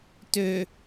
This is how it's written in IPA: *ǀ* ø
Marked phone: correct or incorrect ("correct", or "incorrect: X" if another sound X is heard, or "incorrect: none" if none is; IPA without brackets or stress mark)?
incorrect: t